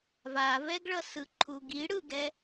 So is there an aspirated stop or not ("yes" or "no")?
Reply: yes